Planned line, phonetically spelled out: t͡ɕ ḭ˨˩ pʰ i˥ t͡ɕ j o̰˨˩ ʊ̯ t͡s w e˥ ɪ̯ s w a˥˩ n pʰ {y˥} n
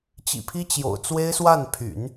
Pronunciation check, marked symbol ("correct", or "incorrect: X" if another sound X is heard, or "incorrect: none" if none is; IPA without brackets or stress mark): incorrect: y̰˨˩˦